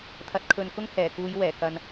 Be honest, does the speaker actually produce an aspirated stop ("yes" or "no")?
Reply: yes